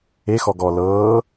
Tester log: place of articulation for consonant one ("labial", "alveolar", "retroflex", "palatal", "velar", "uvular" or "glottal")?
velar